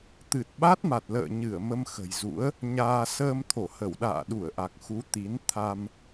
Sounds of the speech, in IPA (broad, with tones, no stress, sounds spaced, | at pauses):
t̪ ɨ˨˩ t̚ ɓ a˦˥ t̚ m a˨˩ t̚ l ə̰ː˧˨ ɲ ɨ˧˩ ə̯ m ə˧ m x ə̤˨˩ j z ṵ˧˥ ə̯ | ɲ aː˧ s əː˧ m t̪ʰ o˧˩ h ə˧˩ w ɗ a̰ː˧˨ ɗ u˧˩ ə̯ ʔ a˨˩ k̚ x u˨˦ t̪ i˨˦ n t̪ʰ a˧ m